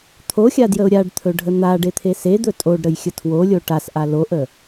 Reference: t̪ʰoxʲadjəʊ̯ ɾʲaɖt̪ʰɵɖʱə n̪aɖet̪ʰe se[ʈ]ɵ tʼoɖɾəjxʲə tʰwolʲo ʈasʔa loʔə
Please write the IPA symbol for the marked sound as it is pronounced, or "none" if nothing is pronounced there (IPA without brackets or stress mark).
d̪